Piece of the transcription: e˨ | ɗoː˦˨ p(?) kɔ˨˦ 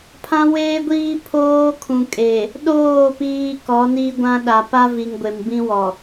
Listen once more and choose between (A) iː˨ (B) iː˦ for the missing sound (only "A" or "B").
B